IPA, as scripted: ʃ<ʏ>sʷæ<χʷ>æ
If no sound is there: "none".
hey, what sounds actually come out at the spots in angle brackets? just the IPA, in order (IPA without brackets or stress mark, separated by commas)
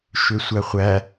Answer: ʏ, χʷ